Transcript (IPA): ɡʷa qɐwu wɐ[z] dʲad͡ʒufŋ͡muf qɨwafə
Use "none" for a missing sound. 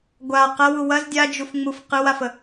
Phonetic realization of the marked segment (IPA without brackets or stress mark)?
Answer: z